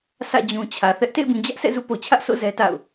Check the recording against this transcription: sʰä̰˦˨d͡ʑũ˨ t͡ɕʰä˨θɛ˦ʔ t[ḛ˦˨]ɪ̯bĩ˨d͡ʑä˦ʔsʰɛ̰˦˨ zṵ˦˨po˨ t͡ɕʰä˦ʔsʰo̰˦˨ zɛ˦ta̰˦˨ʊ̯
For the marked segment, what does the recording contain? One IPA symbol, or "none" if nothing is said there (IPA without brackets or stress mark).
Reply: ḛ˦˨